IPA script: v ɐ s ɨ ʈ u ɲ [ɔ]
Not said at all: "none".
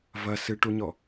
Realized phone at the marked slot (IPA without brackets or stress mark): ɔ